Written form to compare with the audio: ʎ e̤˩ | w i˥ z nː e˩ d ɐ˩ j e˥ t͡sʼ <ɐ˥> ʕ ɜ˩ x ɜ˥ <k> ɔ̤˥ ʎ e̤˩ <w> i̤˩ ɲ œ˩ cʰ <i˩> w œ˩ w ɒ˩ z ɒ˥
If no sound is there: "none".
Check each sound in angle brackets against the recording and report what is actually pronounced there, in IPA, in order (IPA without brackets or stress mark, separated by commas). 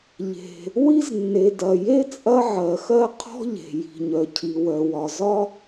ɐ˥, qʰ, j, i˩